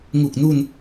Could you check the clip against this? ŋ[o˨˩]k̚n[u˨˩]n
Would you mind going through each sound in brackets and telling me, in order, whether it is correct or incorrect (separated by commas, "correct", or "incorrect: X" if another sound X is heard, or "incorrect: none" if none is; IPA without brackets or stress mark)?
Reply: incorrect: u˨˩, incorrect: u˧